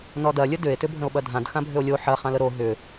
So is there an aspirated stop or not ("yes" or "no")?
no